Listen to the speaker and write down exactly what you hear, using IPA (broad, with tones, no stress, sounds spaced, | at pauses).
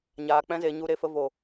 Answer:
ɲ aː˨ k͡p ɛ̃˧ z e˨ ɲ u˨ ɾ e˨ f ə˨ v o˨